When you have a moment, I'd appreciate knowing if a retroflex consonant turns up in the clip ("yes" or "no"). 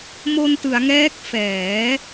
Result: no